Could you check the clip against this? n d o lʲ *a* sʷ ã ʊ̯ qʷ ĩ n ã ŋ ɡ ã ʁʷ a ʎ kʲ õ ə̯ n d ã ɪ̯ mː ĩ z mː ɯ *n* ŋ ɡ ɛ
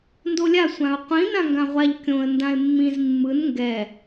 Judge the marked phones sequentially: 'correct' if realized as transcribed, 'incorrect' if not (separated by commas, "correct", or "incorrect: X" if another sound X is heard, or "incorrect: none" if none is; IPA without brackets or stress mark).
correct, correct